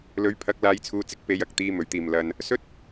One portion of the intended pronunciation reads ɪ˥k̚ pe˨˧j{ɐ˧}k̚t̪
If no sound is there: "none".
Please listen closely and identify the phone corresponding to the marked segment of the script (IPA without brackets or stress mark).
ɐ˨